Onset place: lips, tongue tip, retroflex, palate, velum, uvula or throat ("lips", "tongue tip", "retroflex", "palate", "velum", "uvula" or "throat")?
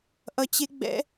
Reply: throat